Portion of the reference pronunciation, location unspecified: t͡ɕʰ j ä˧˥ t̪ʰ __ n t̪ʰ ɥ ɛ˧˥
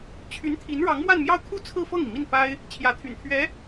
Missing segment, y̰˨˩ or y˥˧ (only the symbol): y̰˨˩